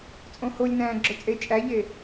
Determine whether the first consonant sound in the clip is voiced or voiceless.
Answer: voiceless